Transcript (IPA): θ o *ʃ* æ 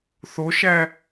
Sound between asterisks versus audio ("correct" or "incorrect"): correct